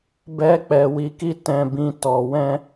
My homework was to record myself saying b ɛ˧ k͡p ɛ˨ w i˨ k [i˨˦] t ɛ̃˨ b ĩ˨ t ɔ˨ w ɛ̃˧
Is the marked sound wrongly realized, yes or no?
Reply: yes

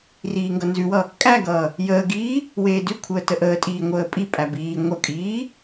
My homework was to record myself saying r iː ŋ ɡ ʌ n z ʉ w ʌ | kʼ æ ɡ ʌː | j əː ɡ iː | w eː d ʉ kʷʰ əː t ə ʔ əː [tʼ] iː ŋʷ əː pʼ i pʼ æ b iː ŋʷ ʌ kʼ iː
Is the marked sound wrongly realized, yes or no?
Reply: no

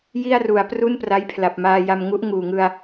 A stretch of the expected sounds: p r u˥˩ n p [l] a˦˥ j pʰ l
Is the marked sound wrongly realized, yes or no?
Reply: yes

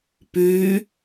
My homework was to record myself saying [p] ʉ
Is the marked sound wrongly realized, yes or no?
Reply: no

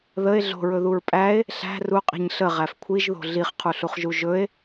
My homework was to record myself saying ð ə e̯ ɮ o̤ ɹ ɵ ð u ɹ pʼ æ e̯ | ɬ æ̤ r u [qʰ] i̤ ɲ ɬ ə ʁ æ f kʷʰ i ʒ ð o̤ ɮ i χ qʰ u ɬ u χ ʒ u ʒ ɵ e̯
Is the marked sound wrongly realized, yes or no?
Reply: yes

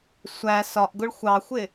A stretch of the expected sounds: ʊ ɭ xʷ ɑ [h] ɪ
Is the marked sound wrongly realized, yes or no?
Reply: yes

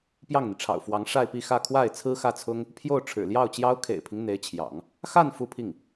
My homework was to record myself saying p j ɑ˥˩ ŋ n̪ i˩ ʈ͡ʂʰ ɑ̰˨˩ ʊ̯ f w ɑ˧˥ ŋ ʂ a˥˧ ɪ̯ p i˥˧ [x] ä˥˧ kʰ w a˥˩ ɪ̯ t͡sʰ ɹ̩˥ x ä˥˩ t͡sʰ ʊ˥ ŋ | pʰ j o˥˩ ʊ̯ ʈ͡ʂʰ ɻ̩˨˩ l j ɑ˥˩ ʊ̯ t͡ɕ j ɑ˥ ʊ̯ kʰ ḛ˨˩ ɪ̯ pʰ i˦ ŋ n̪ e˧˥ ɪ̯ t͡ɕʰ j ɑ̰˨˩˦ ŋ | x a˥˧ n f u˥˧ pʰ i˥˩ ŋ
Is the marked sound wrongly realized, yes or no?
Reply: no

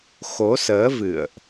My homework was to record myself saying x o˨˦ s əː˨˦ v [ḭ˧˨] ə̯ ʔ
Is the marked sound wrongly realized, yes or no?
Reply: yes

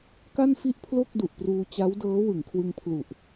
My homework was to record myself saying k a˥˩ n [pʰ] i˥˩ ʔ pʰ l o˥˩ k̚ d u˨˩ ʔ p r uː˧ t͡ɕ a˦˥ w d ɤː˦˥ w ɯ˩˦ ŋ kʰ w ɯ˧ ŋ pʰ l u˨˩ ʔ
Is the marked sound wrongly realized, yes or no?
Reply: yes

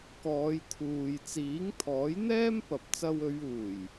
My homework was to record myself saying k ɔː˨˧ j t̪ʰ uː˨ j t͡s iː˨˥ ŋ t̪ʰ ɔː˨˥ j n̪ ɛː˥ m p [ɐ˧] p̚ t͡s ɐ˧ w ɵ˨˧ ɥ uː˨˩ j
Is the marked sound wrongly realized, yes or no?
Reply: yes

